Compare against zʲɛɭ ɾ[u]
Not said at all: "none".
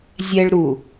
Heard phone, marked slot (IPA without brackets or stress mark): u